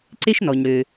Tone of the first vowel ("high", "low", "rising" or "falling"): high